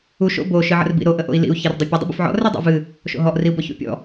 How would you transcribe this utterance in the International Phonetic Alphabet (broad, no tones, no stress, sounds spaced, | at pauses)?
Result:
u ʃ o̰ b o ʃ ɨ ʕ ə̰ r b ḭ ɾ o ʔ ə ʔ o̰ i̯ l ḭ u̯ ç e r dˤ o pʲ ə dˤ ḭ b ə̰ f ʕ ɔ̰ r e dˤ ṵ v ɨ | ʃ o̰ ɦ ɔ ʔ r i u̯ b ɔ ç ṵ pʲ ɔ̰